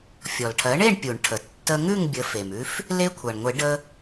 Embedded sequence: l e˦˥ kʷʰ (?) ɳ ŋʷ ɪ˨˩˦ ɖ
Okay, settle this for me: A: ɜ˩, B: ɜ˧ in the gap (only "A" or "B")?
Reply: A